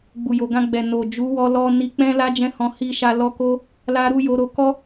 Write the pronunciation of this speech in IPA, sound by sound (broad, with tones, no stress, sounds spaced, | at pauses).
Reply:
ɡ͡b u˨ j o˨ ɡ ã˧ ɡ͡b ɛ˨ n o˨ d͡ʒ u˨˦ w ɔ˧ l ɔ˧ n i˧ k͡p ɛ̃˦ l a˦ d͡ʒ ɛ̃˦ h ɔ̃˧ h i˦ ʃ a˦ l ɔ˦ k o˦ | l a˦ ɾ u˦ j o˧ ɾ o˧ k ɔ˦